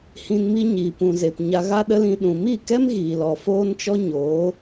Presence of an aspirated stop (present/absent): absent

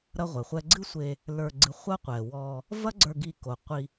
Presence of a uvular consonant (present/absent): present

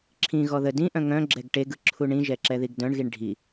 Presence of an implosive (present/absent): absent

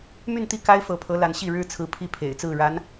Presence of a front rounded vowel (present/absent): present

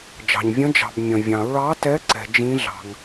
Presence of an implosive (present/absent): absent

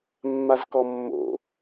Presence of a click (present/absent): absent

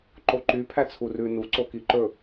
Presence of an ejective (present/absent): absent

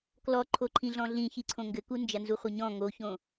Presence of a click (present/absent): present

